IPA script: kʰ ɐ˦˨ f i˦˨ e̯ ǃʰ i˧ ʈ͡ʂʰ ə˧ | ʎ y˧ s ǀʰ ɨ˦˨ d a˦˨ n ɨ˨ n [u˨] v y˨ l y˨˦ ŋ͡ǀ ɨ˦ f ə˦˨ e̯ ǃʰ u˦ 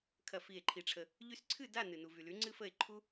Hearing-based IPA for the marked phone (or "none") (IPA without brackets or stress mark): u˨